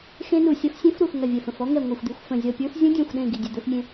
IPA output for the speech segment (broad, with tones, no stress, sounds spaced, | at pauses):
x ẽ˦˥ n u˧˩ sʲ ɐ˦˥ f sʲ ẽ˦˥ f ɾ u˧˩ f ŋ ɐ˧˩ vʲ ɛ˧˩ f ə̃˧˩ f ɔ˦˥ ŋ ɛ˧˩ ŋʷ ɐ˧˩ xʷ d̪ i˧˩ xʷ f ə̃˧˩ zʲ ɔ˧˩ pʲ ə˞˦˥ f zʲ ə̃˦˥ dʲ ẽ˧˩ xʷ ɗ ẽ˧˩ ɡ i˧˩ dʲ e˧˩ d̪ ə˞˦˥ f mʲ ẽ˦˥